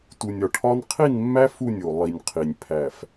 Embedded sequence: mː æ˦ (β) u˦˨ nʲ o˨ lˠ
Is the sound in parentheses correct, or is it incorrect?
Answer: incorrect